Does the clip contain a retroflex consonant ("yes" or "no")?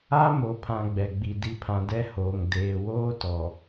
no